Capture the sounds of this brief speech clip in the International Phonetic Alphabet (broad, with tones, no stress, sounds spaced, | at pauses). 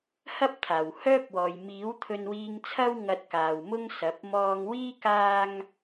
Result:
h ɐ˥ p̚ t̪ʰ aː˨˩ w h œː˥ p̚ w ɔː˨ j m iː˨˥ w t̪ʰ ɵ˧ n w iː˧ ŋ t͡sʰ ɐ˥ w ŋ ɐ˧ t̚ k aː˨ w m ʊ˥ ŋ s ɐ˨˥ p̚ m ɔː˧ ŋ w iː˥ k aː˥ ŋ